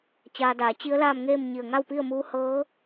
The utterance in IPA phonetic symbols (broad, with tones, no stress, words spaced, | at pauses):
t͡ɕaː˧daː˩˧ t͡ɕi˧˥ə̯laː˥˨mŋeː˥˨m ɲi˧˩ə̯ŋa˥˨w pi˥˨ə̯muː˧˥ hɤː˧˥